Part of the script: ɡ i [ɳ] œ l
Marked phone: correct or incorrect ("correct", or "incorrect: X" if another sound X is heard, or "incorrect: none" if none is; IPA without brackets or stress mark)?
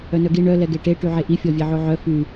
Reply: correct